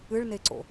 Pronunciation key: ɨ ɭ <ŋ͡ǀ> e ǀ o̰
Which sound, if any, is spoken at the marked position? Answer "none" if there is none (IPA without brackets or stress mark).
n